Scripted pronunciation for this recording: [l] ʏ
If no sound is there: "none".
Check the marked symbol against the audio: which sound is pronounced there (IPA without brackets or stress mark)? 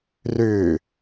r